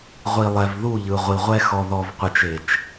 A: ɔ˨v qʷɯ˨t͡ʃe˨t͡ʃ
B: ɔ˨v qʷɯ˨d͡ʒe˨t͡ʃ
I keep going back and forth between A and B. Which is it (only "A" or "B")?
A